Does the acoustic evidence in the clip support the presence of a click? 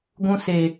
no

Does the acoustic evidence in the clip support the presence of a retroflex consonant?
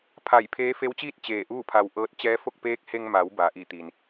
no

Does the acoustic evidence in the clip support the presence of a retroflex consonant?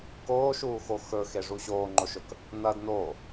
yes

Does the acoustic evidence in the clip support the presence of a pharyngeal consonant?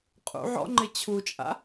yes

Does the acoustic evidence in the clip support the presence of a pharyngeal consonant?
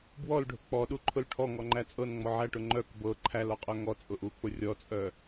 yes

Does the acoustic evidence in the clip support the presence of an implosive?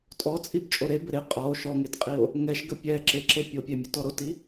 no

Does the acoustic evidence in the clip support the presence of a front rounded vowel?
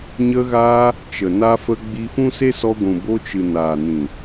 no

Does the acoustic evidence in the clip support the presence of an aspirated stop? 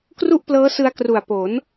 no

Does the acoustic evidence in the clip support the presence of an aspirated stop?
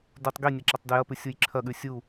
yes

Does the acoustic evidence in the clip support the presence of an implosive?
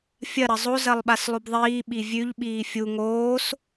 yes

